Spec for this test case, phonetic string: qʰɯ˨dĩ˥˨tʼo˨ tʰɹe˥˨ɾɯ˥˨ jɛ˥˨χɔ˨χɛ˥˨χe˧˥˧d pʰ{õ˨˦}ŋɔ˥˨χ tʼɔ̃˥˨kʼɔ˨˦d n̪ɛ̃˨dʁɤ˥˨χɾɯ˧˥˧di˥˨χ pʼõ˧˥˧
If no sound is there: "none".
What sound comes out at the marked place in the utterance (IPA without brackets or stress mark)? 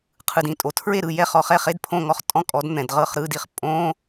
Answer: õ˥˨